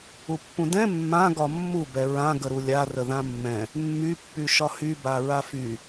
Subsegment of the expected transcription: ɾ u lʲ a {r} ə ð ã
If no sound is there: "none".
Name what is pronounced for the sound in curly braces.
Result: r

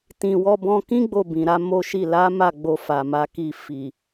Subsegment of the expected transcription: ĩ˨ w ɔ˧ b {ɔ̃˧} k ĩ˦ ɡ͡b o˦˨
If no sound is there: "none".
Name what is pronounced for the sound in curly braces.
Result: ɔ̃˧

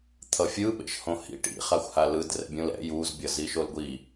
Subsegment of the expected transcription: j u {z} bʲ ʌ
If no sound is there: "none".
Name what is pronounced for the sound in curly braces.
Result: z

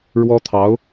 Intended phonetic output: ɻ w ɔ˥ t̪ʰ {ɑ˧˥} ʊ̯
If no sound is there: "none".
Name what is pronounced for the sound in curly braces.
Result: ɑ˧˥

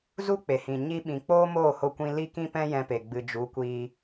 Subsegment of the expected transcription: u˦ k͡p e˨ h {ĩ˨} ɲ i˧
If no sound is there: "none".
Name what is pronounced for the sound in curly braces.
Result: ĩ˨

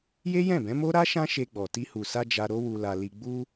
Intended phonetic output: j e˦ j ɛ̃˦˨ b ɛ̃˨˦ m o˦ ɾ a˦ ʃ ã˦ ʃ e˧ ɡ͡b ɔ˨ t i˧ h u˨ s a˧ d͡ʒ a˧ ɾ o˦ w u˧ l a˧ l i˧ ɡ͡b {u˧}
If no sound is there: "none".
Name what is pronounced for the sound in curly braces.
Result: u˧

